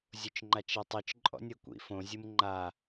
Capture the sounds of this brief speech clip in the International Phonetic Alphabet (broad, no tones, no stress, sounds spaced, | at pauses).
zʲ o t͡ʃ ŋ͡ǃ a t͡ʃ e tˤ ɯ t͡ʃ ǃʼ ɔ̰ nʲ ɤ kʷ ḭ f õ zʲ ɯ m ŋ͡ǃ a